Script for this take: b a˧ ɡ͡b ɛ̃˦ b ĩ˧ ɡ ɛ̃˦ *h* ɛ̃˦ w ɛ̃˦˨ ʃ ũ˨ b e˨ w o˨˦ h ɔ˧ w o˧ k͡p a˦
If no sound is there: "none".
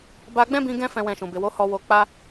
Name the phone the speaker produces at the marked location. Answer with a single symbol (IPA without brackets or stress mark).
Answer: f